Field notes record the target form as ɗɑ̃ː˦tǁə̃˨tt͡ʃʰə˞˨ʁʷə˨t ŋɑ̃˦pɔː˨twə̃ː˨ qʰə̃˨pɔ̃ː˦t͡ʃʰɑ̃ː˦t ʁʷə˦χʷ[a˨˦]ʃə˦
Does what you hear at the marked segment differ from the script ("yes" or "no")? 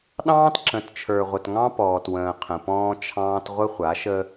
no